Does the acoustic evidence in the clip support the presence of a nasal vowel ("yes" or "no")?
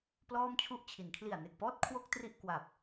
no